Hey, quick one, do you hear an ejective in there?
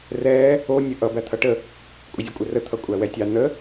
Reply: yes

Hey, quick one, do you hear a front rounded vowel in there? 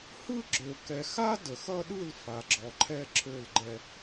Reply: yes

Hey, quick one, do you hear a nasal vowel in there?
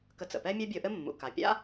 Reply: no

